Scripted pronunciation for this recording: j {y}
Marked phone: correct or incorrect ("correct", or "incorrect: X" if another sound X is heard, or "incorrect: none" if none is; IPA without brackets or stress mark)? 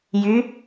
correct